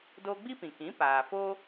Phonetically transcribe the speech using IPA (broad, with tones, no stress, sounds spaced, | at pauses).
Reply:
d oː˦ ɡ͡b i˦ p ĩ˨ k ĩ˨˦ p aː˨ f oː˦